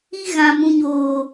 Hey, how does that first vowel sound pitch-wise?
high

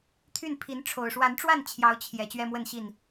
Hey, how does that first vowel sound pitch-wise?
falling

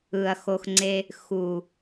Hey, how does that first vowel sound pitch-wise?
low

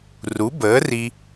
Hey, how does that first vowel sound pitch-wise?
rising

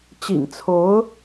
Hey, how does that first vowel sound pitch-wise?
low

